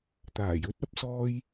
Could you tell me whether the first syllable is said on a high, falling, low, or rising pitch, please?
low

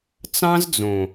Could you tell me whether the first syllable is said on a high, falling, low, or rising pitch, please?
high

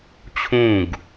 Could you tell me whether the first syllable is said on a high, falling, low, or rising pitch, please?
falling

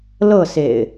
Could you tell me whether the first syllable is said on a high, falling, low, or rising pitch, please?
falling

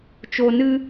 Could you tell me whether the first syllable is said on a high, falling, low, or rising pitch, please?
low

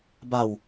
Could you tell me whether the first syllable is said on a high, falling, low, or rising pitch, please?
low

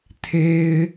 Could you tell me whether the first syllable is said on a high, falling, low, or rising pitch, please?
high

